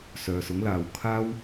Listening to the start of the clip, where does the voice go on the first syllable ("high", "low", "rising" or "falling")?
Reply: low